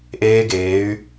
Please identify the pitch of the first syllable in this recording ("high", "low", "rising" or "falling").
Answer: high